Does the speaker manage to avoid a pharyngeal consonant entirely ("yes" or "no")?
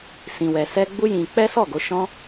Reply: yes